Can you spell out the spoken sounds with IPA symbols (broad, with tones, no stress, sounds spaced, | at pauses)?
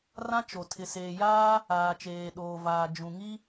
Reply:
r ã˦ t͡ʃ o˨ tʰ ɪ˨ s eː˨ j aː˦ | aː˨ t͡ʃ eː˨ ɗ oː˨ v aː˨ d͡ʒ ũ˨ ŋ i˦